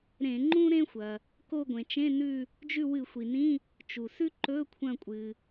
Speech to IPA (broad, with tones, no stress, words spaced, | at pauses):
ɾẽ˧˩˧ŋ͡ǃũ˥ ɾẽ˥xʷɐ˩ | ko˦˨ɡʷẽ˩t͡ʃẽ˧˥˧ nʉ˦˨ | d͡ʒʉ˦˨wɨ˧˩˧ xʷi˩nĩ˧˥˧ | t͡ʃu˩sʉ˥ǃɵ˧˥˧ kʷʰɐ̃˦˨kʷʼɨ˩